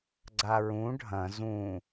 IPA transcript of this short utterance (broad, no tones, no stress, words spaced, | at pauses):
ɡ͡ǀaɹũ ɖʱɐ̃ zũ